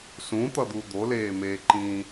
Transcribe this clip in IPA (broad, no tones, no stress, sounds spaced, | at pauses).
s ũ t̪ ʌ d̪ u d̪ o l eː m eː ǃ ĩː